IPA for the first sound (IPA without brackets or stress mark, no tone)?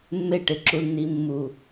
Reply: mː